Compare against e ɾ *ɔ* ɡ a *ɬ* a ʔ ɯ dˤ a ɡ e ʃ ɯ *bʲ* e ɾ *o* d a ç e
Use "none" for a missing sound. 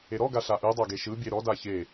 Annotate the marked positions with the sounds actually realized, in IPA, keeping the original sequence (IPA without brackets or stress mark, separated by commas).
ɔ, ɬ, bʲ, ɔ